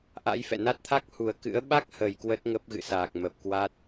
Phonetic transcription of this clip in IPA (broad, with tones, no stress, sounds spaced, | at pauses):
ʔ a̰˧˥ j f ɛ̰˧˨ n a˦˥ t̚ t̪ʰ a˦˥ k̚ h u˨˩ ə̯ k ɨ̰˧˥ ə̯ ɓ a˦˥ k̚ h ə˨˩ j k w ə˦˥ t̚ ŋ ə˦˥ p̚ ɣ ɨ̰˧˨ s aː˨˩ k̚ m ə˨˩ p̚ k w a˦˥ t̚